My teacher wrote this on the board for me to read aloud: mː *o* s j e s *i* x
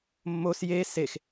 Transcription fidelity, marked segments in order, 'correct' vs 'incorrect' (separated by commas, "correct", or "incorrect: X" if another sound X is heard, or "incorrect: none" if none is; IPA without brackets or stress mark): correct, incorrect: e